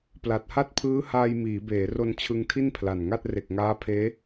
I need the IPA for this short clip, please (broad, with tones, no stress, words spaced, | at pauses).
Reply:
pla˨˩t̚ha˥˩t̚pʰɯː˦˥ haː˧jmiː˩˦beː˩˦ro˧n t͡ɕʰɯ˧ŋtʰi˥˩npʰla˨˩nŋa˥˩t̚ re˨˩k̚ŋaː˦˥pʰeː˦˥